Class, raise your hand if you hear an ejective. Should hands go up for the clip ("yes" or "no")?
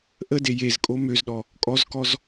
yes